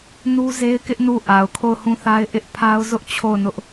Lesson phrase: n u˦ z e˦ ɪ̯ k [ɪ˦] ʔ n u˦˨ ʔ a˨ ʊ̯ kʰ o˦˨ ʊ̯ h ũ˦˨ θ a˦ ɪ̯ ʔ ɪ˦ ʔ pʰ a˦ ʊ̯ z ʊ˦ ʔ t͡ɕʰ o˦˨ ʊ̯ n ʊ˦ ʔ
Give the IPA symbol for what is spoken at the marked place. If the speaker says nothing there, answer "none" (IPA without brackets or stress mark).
ɪ˦